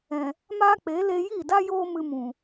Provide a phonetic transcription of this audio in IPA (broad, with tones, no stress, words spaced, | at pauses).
ɛ̃˨ | maː˦k͡pe˨˦ le˧ji˦˨da˦ joː˦mɨ˧mũ˨